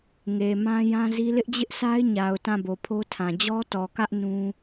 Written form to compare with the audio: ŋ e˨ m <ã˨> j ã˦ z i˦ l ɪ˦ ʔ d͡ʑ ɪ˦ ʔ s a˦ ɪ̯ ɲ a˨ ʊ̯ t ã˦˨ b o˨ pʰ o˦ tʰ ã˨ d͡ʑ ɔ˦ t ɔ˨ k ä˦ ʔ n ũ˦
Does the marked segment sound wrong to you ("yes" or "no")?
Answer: yes